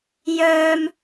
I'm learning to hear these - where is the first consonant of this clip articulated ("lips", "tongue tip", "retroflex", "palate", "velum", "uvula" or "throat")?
palate